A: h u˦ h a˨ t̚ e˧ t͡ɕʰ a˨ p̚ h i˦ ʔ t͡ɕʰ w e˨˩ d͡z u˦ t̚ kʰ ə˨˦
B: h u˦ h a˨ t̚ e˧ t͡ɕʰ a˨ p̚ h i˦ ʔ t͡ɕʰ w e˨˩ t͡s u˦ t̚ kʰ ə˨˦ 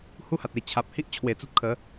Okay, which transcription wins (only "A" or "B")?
B